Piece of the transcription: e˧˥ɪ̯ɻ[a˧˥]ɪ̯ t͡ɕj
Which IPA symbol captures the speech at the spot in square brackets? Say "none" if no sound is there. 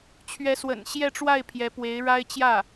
a˥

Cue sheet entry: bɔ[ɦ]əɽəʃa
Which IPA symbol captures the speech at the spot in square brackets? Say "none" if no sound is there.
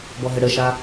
ɦ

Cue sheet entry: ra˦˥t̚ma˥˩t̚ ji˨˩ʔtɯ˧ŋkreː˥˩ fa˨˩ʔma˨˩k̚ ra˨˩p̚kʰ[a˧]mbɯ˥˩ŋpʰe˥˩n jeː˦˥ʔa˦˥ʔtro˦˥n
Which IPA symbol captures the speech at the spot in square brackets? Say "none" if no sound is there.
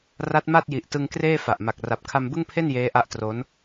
a˧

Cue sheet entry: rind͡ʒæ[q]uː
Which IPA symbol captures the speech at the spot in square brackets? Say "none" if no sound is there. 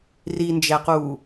q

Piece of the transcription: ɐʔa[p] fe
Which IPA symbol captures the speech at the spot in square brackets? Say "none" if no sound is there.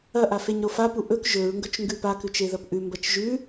none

